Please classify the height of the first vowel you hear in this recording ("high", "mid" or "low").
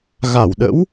low